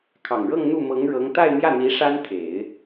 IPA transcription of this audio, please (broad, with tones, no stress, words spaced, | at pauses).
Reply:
kʰɑ˨˩ŋɻɤ˥˧ŋ n̪u˥˩mɤ˧˥ŋɻɤ˧˥ŋ t̪a˥˧ɪ̯mjä˥˩n̪i˧˥ ʂa˥n t̪ʰe˨˩˦ɪ̯